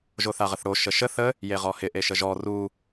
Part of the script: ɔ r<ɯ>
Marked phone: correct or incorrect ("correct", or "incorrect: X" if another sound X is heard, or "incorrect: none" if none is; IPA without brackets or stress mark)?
incorrect: u